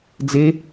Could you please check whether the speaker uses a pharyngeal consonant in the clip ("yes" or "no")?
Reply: no